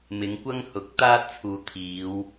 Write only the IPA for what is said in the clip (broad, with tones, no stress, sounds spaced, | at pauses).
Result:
m ɪ˨˧ ŋ kʷ ɐ˥ ŋ h ʊ˨˥ k̚ t̪ aː˥ t̚ t͡sʰ uː˨ t̪ʰ iː˨˧ w